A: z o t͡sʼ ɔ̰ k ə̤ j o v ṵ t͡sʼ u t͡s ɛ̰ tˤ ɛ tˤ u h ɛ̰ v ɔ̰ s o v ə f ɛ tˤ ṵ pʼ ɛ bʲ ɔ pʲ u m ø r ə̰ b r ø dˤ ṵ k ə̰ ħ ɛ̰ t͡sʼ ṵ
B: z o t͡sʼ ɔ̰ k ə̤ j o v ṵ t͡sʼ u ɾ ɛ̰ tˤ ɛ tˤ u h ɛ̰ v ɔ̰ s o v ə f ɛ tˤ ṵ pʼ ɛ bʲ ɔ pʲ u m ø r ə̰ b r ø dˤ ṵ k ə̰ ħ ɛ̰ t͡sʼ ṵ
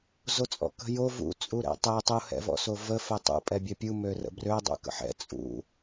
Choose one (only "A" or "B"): B